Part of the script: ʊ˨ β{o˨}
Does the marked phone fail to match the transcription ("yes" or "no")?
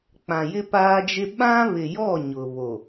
no